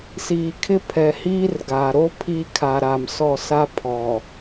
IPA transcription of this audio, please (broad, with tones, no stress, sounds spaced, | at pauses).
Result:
s iː˨ kʰ ɪ˦ pʰ ɛ˨ h iː˦ r ɡ aː˨ ɾ o˦ pʰ iː˦ kʰ a˨ ɾ a˨ m s ɔ˦˨ s a˦ pʰ ɔ˨